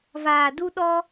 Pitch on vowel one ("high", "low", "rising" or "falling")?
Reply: low